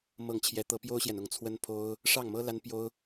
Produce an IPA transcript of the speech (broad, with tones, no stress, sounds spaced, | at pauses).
m ɤ˥˨ ŋ t͡ɕʰ j ɛ˦ t̪ ɤ˦ p j o˦ ʊ̯ ɕ j ɛ˨ n ʊ˥˨ ŋ t͡sʰ w ə˦ n pʰ o˦ ʊ̯ | ʂ ɑ˥˨ ŋ m ɤ˦ l a˦ n p j o˦ ʊ̯